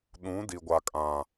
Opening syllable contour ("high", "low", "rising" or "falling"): rising